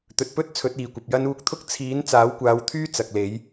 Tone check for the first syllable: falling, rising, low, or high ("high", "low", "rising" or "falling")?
low